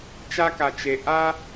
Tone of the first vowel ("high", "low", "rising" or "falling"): high